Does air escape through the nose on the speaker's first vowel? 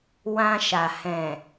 yes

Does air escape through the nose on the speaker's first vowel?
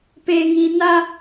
no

